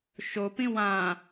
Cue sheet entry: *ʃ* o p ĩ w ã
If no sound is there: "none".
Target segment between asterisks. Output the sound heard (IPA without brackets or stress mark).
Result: ʃ